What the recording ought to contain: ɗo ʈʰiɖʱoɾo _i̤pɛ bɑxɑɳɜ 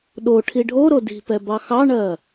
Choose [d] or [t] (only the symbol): d